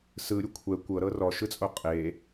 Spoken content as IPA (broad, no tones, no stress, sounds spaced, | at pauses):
s ɯ ɾʲ u kʷʰ ɛ kʷ ɤ ɾ ɤ r ɔ ʃ ɯ t͡sʼ o qʼ e